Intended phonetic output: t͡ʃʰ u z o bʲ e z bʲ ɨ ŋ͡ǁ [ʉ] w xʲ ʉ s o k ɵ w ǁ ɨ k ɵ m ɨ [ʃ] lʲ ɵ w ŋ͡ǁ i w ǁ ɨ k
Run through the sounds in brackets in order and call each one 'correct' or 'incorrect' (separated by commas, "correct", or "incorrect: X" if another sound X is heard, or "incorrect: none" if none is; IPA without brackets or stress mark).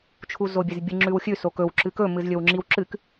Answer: correct, incorrect: z